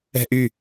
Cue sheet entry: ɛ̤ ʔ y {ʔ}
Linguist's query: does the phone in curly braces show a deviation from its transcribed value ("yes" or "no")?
yes